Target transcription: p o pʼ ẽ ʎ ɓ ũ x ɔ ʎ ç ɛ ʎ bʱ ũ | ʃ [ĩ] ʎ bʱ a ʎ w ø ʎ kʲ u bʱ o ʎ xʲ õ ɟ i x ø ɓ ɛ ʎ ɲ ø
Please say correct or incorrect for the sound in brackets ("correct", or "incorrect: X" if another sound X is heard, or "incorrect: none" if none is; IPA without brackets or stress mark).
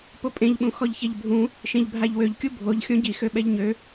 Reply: incorrect: ẽ